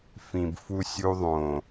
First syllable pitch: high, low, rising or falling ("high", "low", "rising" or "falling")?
low